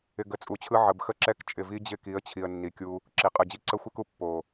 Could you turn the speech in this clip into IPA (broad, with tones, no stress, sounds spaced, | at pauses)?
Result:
ɪ˨ ɡ ə˨ t͡sʼ u˨ t͡ɕʰ ɯ˧ ʕ ə˨ b x ə˦ ǁ ɛ˦ k t͡ʃʼ ɪ˨ v i˧ d͡ʑ ɪ˦˨ k i˨˦ ə̯ t͡ɕʰ i˨ ə̯ nː i˨ kʲ u˧ | ǁ i˨ qʼ ɯ˨ d͡ʑ i˦ ǀ ə˦ xʷ i˦ k u˧ pː o˨